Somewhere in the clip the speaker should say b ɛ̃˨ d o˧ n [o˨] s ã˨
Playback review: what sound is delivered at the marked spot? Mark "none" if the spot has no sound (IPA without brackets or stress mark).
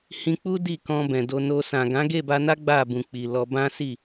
o˧